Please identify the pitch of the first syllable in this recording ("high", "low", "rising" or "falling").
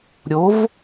rising